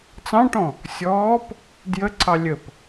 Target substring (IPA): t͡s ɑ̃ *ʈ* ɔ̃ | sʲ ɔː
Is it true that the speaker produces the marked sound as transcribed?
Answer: yes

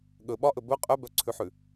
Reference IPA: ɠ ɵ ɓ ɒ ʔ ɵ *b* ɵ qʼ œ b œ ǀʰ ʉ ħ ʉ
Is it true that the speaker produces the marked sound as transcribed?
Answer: yes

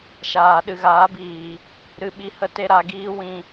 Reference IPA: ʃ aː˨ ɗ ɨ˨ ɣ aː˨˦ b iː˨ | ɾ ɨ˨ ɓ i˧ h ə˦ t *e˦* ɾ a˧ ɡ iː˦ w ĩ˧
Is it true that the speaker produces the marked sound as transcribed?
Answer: yes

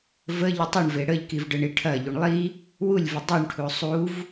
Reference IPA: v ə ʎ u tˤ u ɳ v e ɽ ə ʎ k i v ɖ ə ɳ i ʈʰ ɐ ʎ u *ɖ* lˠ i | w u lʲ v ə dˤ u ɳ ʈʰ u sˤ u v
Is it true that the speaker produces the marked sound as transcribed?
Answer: no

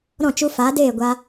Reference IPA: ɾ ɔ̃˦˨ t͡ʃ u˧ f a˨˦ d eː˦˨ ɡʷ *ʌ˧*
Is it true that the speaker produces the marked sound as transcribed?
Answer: no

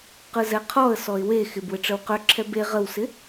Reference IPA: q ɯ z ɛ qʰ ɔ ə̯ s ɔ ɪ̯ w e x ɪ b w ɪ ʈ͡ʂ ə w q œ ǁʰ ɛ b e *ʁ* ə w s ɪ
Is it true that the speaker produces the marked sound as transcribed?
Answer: yes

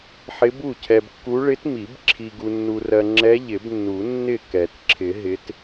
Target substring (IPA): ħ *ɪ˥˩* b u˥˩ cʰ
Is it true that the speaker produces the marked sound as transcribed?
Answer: no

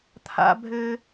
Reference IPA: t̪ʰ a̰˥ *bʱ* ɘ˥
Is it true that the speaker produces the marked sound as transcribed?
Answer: yes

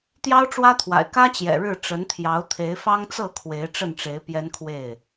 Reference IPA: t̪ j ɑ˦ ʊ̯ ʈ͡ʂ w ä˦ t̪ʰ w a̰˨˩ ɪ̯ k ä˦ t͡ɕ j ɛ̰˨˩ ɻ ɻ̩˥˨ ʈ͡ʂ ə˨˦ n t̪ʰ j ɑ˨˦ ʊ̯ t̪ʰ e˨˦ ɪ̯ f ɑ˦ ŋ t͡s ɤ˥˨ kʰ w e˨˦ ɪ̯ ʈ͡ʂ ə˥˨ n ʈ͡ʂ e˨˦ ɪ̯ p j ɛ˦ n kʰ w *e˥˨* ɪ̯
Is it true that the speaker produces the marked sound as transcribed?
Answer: yes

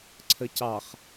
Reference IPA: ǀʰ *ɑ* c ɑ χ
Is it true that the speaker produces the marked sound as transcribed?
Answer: no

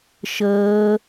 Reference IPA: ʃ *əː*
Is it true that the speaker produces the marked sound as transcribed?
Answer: yes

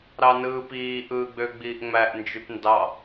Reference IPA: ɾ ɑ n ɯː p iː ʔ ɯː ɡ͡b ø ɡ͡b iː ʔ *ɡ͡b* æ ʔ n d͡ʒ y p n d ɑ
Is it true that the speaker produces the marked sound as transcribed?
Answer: no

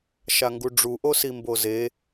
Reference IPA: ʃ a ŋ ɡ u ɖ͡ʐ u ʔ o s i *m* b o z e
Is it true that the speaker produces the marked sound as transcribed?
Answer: yes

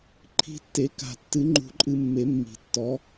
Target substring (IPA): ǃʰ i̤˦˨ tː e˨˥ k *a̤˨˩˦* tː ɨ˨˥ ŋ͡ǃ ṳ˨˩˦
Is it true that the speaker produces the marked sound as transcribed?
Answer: yes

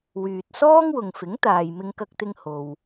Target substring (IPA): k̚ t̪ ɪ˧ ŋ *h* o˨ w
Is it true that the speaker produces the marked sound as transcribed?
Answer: yes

